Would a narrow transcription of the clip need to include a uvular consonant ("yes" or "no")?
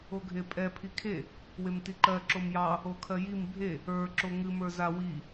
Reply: no